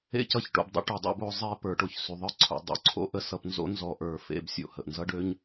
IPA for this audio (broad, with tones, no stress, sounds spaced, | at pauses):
ḛ˥ c ʌ˧ ç ʈ o̰˩˧ b dˤ ə̰˧ ʈ ø˧ dˤ o̰˧˥ b o˧˥ zˤ e˧˥ p ə˞˩˧ ʈ o˩ ç s y˩˧ ðˤ ə˞˥ ǀʰ o̰˩˧ dˤ o̰˧ ǀʰ o̰˧˥ ʔ ə˧ s ʌ˧ p n z o̰˧˥ n z ɔ˧ ʔ ə˞˧ f ḛ˧ b sʲ o̰˩ h ə˩ ʔ n z ʌ˥ ɖ ø˥ ɲ